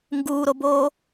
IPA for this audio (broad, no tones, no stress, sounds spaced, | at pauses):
ŋ ɡ uː ɾ o b oː